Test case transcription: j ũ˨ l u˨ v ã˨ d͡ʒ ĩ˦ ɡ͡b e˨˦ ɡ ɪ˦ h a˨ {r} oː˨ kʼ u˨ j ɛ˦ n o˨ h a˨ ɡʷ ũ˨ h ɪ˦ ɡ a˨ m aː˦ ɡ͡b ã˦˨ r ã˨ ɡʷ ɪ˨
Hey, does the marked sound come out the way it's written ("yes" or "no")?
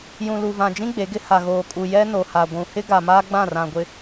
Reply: no